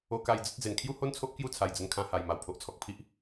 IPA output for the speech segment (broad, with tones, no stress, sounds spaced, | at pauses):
o˧ k a˧ j d͡z ə˦ t̚ d͡z e˨˩ n kʰ j u˥˧ h o˥˧ n t͡sʰ o˦ ʔ k j u˥˧ t͡sʰ a˨˩ j d͡z ə˧ n kʰ ã˧ h a˨˩ j m a˨˩ w pʰ o˨ ʔ t͡sʰ ɔ˨ k̚ pʰ i˦ ʔ